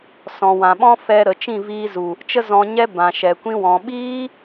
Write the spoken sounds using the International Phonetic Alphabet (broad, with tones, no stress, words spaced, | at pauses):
sɔ̃˨wã˨ ɓɔ̃˦ fɛ˧ ɾə˨t͡ʃĩ˦˨viː˧ zu˨ | t͡ʃə˦zɔ̃˧ɲɛ˦ bã˨ʃɛ˨kʷĩ˧wɔ̃˨ ɓiː˦